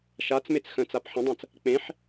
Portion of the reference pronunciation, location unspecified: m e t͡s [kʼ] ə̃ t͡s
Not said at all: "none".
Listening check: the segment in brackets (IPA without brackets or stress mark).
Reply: x